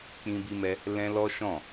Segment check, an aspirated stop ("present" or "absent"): absent